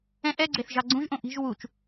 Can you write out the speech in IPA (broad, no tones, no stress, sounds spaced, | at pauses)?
ɛ̃ ʔ ɛ ɡ͡ǀ e θ ʒ ɑ ɡ͡ǀ ũ ʒ ʔ õ ʔ i̤ ʒ w u t͡ʃ